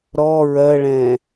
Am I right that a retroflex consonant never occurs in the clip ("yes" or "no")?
no